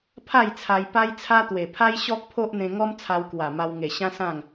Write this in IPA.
pʰ a˥˧ j t͡sʰ a˧ j p a˦ j t͡sʰ a˦ t̪ w e˨˩ pʰ a˦ j ɕ ɔ˦ k̚ pʰ o˦ ʔ n̪ ẽ˧ ŋ ɔ˦ m t͡sʰ a˧ w k w a˨˩ m a˧ w ŋ e˨˩ ɕ ã˦ s ã˥˧ ŋ

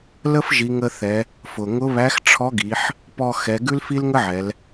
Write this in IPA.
l ə˥ f ʒ i˩˧ ŋ ə˧ θ ɛ˩˧ | f ʊ˩ ŋ ʊ˧˥ β æ˧˥ x ʈ͡ʂʰ ɔ˧˥ ɡ i˩˧ ħ | p ɔ˧ x ɛ˩˧ ɡ ʉ˥ l f i˥ l ŋ ə˥ ʕ ɛ˩˧ l

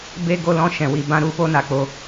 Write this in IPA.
b e˦ ɡ o˦ l ɔ̃˦ ʃ ɛ̃˧ w i˧ b ã˦ ɾ u˦ f o˦ n a˧ k͡p o˧

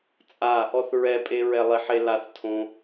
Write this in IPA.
t͡sʼ a | ɔ θ ɹ ɛ pʼ e ɹ ɛ lˠ i ħ e l a θ tʰ õ

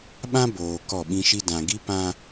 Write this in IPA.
ɓ ã˦ b oː˨ k ɔ˦˨ ɓ ĩ˦ ʃ i˦ d ã˨ ɡ i˦ p ã˦

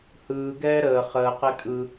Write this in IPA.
h ɯː ɡ ɛː ɾ əː χ əː q e kʼ ɯ

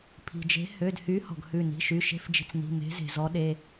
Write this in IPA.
pʰ i̤˩ d͡ʒ e̤˨˥ h ø˩˧˩ d h y˨˥ h ɔ̤˩ ɡ h ʉ˧˩ n i̤˩˧˩ ʃ y˩˧˩ ʃ e̤˦ f d͡ʒ i̤˧˩ t͡s n i̤˩˧˩ m e̤˨˥ z e̤˩ z ɔ˨˥ ɗ e˩˧˩

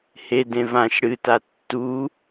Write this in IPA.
h e d ẽ v ã ʃ ɽ ɨ t a tː u

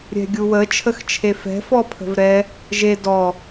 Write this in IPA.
ɾʲ ɛ̤ ɡʲ u w ə t͡ʃʰ ə x t͡ʃʰ e f ɛ̤ f ɔ pʰ ə̤ v ɾ ɛ | ʒ e d ɔ

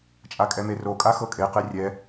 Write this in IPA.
t͡ʃʼ a kʼ ɛ m e r o kʼ a x ɤ kʼ e q e rʲ ɛ

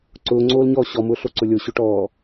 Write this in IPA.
ǀ ʊː ŋ͡ǀ oː l ɲ ɔː ɕ ɔ m ʊː ɬ o ǀ ʊ lʲ o ɕ ʊ ʈ ɔː

